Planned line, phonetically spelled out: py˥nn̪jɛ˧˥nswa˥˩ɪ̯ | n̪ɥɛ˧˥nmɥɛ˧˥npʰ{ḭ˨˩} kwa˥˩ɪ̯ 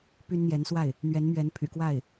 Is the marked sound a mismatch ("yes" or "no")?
yes